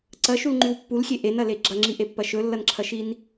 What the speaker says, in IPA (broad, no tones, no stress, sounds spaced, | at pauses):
ǀ ɐ ʃ u l ŋ͡ǃ ʉ w pː u l xʲ e ʔ e n ɐ l e ɡ͡ǁ ɐ ŋ͡ǁ i ʔ e pː ɐ ʃ ɵ lː ɐ n ǁʰ ɐ ʃ i n